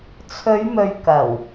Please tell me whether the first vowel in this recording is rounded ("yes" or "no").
yes